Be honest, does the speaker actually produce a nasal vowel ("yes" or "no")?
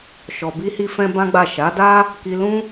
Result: yes